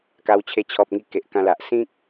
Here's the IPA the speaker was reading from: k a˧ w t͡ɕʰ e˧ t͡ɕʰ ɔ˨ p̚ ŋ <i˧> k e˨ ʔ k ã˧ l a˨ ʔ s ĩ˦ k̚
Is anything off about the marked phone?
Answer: no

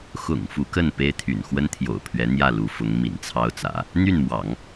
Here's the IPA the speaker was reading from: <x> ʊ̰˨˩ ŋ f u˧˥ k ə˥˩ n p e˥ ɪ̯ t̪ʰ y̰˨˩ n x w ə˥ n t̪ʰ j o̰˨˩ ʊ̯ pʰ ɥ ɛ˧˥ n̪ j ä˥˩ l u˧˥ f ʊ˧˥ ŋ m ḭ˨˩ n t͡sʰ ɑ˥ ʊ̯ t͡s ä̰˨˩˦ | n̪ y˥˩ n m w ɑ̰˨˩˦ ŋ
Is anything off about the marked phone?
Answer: no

